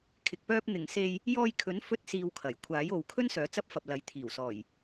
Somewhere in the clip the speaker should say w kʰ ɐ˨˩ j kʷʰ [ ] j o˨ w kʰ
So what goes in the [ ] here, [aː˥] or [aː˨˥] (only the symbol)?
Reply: aː˨˥